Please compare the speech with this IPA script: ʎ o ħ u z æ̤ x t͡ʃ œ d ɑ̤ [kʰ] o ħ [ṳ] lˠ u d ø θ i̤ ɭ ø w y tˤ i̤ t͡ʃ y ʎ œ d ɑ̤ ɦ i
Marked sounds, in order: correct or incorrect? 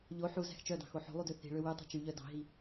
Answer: incorrect: x, incorrect: o̤

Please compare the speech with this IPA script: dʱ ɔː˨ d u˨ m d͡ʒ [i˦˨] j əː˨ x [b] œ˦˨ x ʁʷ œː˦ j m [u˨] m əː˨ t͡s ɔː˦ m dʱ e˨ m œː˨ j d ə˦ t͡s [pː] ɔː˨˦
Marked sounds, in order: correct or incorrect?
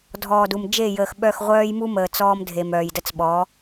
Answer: incorrect: e˦˨, incorrect: ɓ, incorrect: u˦, incorrect: ɓ

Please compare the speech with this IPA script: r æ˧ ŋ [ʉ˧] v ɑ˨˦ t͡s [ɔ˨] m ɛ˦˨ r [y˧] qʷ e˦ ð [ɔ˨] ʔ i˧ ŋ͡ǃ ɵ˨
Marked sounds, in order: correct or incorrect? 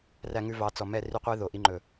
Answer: correct, correct, correct, incorrect: o˨

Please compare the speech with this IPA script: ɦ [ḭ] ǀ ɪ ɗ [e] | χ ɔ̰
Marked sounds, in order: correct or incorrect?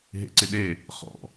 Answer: incorrect: ḛ, correct

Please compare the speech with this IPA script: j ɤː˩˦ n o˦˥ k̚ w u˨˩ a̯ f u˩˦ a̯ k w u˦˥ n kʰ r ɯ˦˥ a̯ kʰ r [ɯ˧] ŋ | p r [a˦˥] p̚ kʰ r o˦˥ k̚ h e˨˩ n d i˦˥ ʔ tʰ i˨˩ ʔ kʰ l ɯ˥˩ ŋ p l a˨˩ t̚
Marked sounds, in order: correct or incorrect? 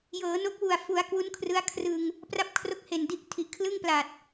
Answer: correct, correct

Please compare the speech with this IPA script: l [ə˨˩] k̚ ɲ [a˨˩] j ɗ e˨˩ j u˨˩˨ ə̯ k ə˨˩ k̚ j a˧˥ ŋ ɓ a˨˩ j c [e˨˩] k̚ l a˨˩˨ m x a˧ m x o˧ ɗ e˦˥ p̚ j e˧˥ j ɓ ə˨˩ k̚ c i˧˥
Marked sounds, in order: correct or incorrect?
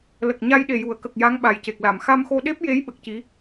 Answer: correct, incorrect: a˧, correct

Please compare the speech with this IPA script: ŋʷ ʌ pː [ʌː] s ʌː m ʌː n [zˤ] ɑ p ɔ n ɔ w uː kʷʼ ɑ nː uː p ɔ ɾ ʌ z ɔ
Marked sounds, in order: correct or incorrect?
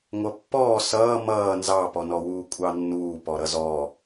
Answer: incorrect: ɔː, incorrect: z

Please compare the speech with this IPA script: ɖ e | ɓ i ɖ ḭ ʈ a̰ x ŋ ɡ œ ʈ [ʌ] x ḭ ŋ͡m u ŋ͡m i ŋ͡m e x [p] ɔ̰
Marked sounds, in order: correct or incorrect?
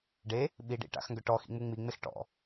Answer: incorrect: ɔ, incorrect: ʈ

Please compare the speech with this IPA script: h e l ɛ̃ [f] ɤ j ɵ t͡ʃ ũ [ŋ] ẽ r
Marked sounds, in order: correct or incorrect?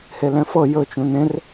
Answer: correct, incorrect: n

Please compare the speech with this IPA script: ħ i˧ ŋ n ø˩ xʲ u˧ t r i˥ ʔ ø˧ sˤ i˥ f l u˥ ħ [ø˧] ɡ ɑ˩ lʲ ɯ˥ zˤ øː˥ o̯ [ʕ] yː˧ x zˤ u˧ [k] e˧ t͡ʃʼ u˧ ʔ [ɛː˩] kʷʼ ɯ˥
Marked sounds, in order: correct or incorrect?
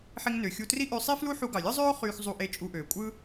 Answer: incorrect: u˧, incorrect: χ, incorrect: ʔ, incorrect: øː˩

